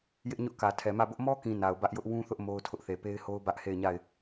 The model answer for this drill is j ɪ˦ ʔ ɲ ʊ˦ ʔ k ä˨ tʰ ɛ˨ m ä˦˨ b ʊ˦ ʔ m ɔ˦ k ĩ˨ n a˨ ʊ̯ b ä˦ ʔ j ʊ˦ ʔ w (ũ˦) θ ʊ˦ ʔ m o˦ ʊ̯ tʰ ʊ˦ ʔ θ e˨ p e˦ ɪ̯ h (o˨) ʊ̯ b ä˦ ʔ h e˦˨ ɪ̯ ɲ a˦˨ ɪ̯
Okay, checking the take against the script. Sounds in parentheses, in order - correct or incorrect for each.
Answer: correct, incorrect: o˦

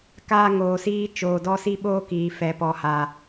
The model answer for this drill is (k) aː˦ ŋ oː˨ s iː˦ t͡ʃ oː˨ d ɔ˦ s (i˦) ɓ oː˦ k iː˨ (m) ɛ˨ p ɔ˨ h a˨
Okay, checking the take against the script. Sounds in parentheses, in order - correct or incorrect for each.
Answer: correct, correct, incorrect: f

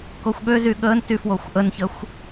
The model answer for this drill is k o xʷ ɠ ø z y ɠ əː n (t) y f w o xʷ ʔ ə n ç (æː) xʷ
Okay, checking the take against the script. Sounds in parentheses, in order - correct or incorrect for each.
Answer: correct, incorrect: əː

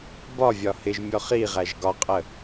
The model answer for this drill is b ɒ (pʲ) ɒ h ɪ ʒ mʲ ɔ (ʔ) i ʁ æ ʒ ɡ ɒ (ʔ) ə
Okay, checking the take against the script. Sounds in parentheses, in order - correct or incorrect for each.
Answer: incorrect: vʲ, incorrect: χ, incorrect: qʼ

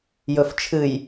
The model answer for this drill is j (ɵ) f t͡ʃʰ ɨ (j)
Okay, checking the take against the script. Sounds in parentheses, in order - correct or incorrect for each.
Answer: correct, correct

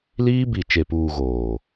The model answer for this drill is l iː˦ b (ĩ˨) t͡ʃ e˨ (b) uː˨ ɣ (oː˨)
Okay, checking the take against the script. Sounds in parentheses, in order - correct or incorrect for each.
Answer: incorrect: i˨, incorrect: p, correct

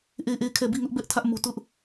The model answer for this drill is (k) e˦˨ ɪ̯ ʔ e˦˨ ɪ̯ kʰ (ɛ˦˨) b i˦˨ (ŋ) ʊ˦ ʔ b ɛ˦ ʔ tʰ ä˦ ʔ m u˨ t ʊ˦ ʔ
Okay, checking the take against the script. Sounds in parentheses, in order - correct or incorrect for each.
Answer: incorrect: ʔ, correct, correct

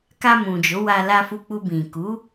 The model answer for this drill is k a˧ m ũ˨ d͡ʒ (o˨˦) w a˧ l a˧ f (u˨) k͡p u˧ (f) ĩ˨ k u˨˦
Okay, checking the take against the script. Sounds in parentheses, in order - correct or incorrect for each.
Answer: correct, incorrect: u˧, incorrect: b

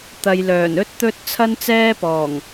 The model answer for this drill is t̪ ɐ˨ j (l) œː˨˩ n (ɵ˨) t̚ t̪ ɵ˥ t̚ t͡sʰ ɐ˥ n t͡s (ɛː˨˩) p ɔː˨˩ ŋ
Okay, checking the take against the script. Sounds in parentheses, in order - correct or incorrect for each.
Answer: correct, incorrect: ɵ˥, incorrect: ɛː˥

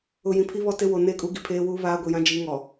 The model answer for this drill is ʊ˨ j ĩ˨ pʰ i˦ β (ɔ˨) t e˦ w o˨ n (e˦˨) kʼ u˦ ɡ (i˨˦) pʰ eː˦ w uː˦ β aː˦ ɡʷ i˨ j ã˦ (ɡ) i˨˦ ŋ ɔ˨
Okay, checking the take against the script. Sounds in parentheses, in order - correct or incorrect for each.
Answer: incorrect: ɔ˦, correct, incorrect: i˨, incorrect: d͡ʒ

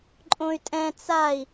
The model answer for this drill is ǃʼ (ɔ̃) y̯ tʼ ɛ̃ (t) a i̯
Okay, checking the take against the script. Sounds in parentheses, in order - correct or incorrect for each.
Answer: incorrect: õ, incorrect: t͡s

